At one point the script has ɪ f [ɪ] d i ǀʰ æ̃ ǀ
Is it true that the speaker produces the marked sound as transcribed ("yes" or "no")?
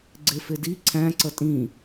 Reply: yes